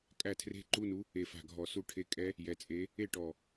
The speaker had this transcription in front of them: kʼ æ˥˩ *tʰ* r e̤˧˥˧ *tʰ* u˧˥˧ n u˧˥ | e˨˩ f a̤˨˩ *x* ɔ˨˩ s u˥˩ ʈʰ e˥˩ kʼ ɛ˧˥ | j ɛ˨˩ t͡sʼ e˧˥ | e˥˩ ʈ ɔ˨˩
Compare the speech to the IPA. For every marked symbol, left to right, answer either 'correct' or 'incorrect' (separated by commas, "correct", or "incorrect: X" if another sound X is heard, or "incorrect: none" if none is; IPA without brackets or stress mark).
correct, incorrect: ǃ, incorrect: ɡʱ